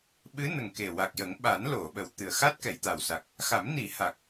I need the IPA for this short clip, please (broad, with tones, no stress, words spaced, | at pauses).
ɓɨ˧˥nə˨˩ŋ ke˨˩wa˨˩k̚jə˨˩˦ŋ ɓa˨˩˦n lo˨˩˨ɓə˨˩w t̪ɨ˨˩ə̯xa˦˥t̚ kɛ˨˩˨jt̪a˨˩wsa˨˩k̚ | xa˨˩˦mni˨˩˦ ha˨˩k̚